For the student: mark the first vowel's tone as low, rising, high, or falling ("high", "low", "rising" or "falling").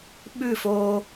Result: falling